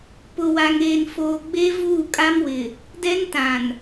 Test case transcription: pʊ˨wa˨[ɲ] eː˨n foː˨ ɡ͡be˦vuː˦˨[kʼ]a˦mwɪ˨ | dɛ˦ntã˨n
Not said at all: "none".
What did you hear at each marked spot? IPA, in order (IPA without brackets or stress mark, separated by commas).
ŋ, kʼ